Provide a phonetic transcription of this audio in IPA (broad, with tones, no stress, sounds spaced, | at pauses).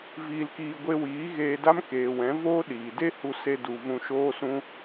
v iː˧ l k iː˧ ɡʷ e˧ w iː˨˦ ɣ eː˧ d a˦ m k eː˨ w ɛ̃˨˦ v oː˦ ɗ iː˨ d e˦ h u˧ s e˧ d u˨ v ũ˧ ʃ oː˦ s ũ˦